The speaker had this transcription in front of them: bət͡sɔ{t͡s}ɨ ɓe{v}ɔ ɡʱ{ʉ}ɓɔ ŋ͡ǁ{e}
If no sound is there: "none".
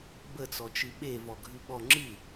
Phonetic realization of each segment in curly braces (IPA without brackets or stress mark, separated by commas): t͡ʃ, v, ʉ, ɨ